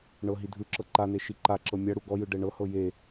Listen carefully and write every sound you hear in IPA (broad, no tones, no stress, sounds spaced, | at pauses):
ɳ ɤ ɦ i dʱ ɯ ǁ ɤ ǃ a n e ʃ i ǃ a ǁ ɤ mʲ a ɽ u ɡ ɔ j ɯ ɖ ɛ ɳ ɤ h ɤ j e